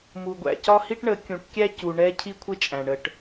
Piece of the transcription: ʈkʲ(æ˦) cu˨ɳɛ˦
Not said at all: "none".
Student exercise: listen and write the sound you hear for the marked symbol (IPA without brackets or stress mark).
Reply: æ˦